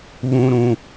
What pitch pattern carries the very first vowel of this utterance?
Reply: low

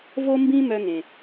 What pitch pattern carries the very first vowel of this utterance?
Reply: high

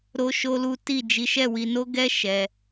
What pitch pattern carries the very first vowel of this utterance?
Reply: high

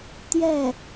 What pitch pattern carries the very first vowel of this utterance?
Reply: falling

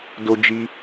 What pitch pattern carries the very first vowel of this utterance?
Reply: high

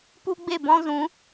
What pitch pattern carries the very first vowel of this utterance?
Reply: high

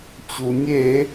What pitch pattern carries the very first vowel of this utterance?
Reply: low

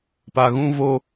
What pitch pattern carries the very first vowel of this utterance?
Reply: low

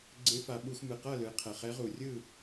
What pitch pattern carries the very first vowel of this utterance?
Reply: rising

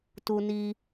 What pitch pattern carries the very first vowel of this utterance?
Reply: high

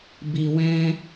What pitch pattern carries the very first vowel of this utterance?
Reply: low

